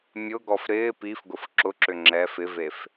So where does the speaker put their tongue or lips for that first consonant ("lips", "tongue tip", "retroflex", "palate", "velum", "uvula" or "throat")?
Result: lips